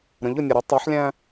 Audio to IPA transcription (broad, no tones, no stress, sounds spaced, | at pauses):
ɾ ə̃ ʎ ʊ nʲ ɛ ɾ ʊ tˤ æ ħ lʲ æ̃